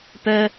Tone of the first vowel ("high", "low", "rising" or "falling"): high